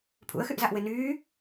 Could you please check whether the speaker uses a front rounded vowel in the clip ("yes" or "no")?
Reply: yes